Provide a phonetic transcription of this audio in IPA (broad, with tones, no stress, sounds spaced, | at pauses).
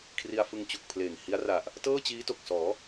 kʰ r i˧ a̯ f ɯ˧ ŋ t͡ɕ u˨˩ k̚ pʰ l eː˨˩ ŋ h i˦˥ a̯ r a˨˩ ʔ | t ɤː˥˩ t͡ɕ iː˦˥ t o˨˩ k̚ s ɔː˩˦